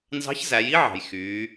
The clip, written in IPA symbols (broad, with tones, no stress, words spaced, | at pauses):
nzɑ̤˧˥çzæ˩˧ji˥ʕɑ̤˩j xyː˩˧